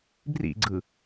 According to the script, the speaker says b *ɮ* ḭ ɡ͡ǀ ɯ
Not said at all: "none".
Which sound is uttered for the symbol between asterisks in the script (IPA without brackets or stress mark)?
r